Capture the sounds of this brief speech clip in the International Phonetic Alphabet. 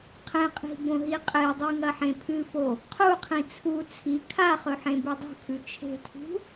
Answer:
qʰẽqʼi̤ bõɦiqʼedˤi ŋɐħẽpʰɨfo | qʰuqʰĩ t͡sʰu t͡sʰi kʰaχɵ ħẽbɵdˤṳkʰʉ t͡ʃʰe̤tʰṳ

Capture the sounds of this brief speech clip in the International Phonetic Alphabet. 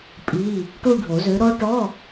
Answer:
pʼi˧˥˧ | ʈu˥˧ɖʱo˨˩˦zø˨˥ ɾɔ˦˥ʈɔ˧˥˧

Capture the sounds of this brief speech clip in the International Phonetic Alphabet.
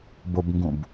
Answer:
bobŋɡũb

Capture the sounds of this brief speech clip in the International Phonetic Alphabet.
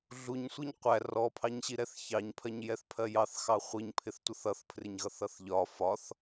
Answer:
ɮuɲsʷiɲ qʷæ rɔpʰɑɲɕiɾɛθ çɑɲpʰɜɲjɛθpʰɜ jɑθxɑ χʷiɲpʰɪθtʷʌθ ʌθpʰrɪɲɣʌθʌθ ʎɒ fɒθ

